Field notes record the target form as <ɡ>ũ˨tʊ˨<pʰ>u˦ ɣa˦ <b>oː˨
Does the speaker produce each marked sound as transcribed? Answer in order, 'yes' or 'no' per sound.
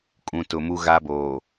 no, no, yes

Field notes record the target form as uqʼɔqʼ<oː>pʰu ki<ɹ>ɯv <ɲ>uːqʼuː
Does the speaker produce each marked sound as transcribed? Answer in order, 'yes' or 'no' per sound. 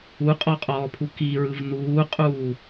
no, yes, no

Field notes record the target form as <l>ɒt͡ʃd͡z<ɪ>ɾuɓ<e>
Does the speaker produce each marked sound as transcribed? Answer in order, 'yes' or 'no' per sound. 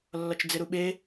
no, yes, yes

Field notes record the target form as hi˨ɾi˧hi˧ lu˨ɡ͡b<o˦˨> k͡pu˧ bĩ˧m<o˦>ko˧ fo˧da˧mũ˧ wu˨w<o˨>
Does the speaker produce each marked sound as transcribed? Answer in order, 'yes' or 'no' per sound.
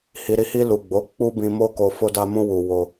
no, yes, no

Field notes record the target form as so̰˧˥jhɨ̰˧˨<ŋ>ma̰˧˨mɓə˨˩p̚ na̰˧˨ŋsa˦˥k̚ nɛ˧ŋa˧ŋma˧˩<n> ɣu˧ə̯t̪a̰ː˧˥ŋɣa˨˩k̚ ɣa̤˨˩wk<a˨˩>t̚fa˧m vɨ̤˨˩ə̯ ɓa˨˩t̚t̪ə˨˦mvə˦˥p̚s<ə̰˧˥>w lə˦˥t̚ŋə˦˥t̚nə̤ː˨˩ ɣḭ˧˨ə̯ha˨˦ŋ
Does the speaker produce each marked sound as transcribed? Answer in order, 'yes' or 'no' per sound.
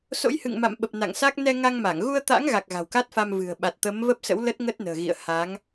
yes, no, no, yes

